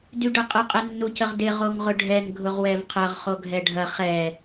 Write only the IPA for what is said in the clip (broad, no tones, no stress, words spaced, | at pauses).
dyɖɐqʼə qʼɛnːucəʁdɪ ʁoŋʁʊɖʱɛŋ ɡʱʊʁwɛvqʰɐʁ χoɡʱɛɖʱɐ χɛ